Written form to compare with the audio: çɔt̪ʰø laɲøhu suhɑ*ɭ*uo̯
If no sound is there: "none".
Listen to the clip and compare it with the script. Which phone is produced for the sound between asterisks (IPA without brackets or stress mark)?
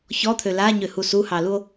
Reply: l